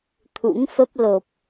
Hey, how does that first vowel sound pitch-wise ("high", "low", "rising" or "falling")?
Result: rising